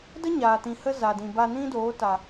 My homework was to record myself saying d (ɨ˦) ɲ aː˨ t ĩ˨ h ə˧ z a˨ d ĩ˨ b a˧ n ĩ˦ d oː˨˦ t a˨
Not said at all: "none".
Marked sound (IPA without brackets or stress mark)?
ə˦